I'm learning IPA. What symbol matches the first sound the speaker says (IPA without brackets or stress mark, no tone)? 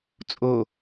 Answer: t͡sʼ